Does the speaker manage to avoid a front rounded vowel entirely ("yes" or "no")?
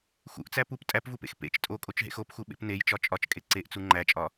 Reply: yes